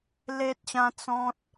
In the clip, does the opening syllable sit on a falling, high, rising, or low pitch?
high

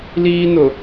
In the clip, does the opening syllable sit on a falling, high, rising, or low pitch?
high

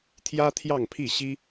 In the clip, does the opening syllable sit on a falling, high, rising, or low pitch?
high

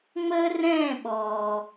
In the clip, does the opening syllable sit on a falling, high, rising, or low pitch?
high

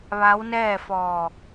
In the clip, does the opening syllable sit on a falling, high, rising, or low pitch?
rising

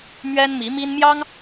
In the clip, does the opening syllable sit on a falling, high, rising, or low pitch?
high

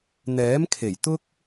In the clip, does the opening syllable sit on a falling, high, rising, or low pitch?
rising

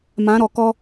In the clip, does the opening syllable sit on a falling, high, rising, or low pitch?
rising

